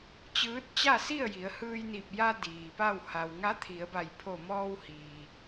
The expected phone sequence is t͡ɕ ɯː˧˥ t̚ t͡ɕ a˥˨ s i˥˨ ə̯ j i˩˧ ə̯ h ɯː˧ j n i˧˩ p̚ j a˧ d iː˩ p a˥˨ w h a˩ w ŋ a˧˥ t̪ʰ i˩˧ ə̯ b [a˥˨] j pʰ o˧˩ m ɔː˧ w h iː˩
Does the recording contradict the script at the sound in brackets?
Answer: yes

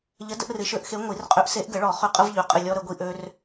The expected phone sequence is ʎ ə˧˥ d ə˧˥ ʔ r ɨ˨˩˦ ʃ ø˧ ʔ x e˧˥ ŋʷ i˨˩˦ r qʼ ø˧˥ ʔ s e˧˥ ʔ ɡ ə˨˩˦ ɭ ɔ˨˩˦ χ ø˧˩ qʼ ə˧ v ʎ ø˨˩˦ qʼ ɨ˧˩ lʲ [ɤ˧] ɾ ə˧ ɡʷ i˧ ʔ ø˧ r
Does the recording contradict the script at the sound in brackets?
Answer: yes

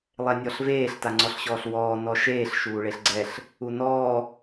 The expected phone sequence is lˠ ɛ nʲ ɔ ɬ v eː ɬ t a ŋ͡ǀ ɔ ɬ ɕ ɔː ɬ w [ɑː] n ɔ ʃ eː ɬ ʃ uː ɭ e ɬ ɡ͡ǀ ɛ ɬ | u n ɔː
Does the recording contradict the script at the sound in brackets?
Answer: yes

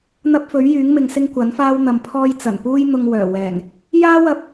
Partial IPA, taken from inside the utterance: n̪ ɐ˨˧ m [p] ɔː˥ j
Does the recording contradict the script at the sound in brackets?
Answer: yes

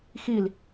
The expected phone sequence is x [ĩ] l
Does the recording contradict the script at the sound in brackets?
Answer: yes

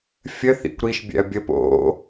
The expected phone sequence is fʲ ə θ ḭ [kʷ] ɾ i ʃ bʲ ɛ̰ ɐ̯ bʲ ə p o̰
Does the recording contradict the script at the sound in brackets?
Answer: no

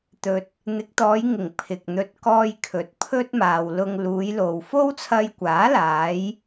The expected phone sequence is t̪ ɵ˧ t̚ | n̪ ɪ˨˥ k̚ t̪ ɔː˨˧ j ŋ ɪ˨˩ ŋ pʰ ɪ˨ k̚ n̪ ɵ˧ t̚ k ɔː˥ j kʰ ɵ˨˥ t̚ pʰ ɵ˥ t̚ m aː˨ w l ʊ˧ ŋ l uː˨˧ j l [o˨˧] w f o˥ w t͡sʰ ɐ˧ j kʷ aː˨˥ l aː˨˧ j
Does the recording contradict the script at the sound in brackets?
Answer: yes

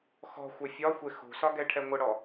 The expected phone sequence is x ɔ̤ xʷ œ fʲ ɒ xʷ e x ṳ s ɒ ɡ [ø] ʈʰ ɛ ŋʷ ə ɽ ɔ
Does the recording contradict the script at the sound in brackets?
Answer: yes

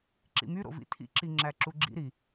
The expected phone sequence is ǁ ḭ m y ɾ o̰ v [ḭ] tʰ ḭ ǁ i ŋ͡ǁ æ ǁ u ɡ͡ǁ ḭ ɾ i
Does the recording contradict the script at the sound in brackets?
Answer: no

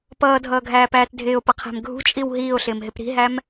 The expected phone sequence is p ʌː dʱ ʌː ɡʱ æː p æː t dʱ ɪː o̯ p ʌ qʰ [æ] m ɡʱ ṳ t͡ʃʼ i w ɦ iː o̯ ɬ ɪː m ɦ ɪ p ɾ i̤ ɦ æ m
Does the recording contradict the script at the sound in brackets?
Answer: yes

